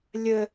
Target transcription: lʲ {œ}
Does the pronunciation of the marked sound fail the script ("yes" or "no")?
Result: yes